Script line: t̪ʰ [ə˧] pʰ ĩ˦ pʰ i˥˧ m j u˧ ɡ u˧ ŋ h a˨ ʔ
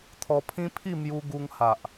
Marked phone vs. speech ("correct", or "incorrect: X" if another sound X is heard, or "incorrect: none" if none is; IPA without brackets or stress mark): incorrect: ɔ˧